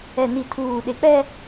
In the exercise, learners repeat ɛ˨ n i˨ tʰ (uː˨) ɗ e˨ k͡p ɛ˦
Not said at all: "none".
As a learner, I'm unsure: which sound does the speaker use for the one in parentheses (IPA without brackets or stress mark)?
uː˨